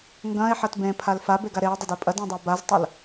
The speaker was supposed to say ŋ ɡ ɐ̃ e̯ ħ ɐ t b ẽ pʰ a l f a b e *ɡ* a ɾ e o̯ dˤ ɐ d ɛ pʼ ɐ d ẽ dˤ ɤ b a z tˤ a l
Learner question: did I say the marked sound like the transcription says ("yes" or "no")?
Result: yes